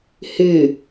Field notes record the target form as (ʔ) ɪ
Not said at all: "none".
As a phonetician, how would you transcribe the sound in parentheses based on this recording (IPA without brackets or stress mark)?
h